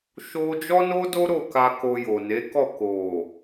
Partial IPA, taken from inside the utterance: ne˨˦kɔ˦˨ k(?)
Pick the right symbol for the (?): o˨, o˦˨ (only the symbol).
o˨